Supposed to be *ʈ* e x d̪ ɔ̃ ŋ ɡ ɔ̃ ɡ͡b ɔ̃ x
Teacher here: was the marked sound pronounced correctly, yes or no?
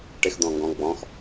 yes